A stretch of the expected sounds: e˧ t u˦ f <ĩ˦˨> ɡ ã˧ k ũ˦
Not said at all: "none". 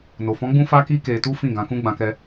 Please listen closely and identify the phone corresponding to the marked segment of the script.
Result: ĩ˦˨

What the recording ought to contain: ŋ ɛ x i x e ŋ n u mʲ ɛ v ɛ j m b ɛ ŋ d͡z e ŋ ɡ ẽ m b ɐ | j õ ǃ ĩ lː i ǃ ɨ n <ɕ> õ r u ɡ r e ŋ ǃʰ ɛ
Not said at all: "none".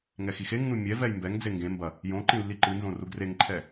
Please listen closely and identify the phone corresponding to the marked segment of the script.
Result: z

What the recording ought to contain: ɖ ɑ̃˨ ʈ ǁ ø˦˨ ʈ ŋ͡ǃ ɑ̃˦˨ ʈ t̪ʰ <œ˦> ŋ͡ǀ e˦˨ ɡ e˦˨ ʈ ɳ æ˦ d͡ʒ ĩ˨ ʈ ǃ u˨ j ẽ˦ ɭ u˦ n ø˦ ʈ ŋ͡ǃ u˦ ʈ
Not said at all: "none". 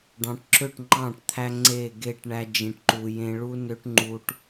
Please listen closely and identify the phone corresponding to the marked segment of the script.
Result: æ˦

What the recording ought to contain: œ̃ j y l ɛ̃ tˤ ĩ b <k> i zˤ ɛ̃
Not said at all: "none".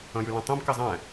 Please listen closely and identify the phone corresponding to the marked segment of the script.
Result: k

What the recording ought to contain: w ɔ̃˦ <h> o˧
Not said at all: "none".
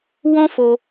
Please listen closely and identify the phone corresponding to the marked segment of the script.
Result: f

